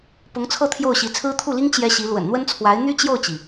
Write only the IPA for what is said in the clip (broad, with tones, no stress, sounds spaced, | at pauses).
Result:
p ʊ˧˥ ŋ t͡sʰ ɤ˥˧ t̪ʰ j o˥˩ ʊ̯ ɕ i˧˥ t͡sʰ ɹ̩˥ t̪ʰ u˥˩ l i˥ ŋ t͡ɕ j ɛ˥ ɕ i˧˥ l w ə̰˨˩ n n̪ w ə˥ n t͡sʰ w a˧˥ ɪ̯ n̪ y˥ t͡ɕ j o˥˩ ʊ̯ t͡ɕ i˩